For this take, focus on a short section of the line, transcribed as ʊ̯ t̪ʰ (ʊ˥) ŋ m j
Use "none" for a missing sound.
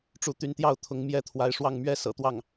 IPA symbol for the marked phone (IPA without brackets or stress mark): ʊ˧˥